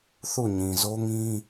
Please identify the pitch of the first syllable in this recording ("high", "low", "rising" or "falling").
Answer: falling